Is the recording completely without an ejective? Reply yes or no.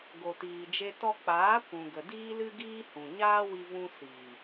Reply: yes